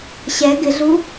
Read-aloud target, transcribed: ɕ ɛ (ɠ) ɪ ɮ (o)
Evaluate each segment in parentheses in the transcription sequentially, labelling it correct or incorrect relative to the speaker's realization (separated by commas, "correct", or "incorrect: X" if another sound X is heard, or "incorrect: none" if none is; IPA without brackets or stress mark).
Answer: incorrect: ɡ, incorrect: u